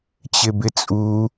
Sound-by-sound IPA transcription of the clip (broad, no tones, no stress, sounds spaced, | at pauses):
t͡ɕ ɪ b ɪ t͡sʼ u